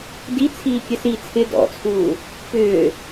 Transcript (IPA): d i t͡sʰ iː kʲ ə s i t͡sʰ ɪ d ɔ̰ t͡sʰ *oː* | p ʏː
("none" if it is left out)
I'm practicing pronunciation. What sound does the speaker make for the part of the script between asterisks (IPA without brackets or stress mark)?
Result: uː